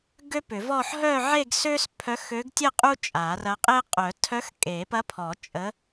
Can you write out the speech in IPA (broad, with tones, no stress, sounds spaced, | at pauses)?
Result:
ɡ ø˥ p ʏ˨˩˦ v ɔ˥˧ ħ ɦ œ˥˧ ʕ e˥˧ ɡ s ø˥ s pʰ œ˧˥ x ø˧˥ ɡ tʲ ə˥˧ qʼ u˥ t͡ʃʼ a˨˩˦ r ɐ˧˥ qʼ e˥ qʼ œ˨˩˦ tʰ œ˧˥ x kʼ e˨˩˦ p ɐ˧˥ pʰ ɔ˨˩˦ t͡ʃʼ ə˧˥